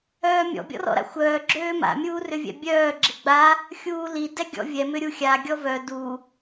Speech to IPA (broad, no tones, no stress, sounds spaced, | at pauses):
œː mʲ ɔ̰ bʲ ɔ̰ r ɔ̰ ɾ a̰ xʷ œː ɡ͡ǁ øː m a̰ mʲ uː r ʏ vʲ ɛ̰ bʲ œː ɡ͡ǁ ɪ ɡ͡b a | xʲ uː l i d ɛ ɡʲ ɔ̰ vʲ ɛ m ʏ ɾʲ u xʲ a ɡʲ ɔ v œ d u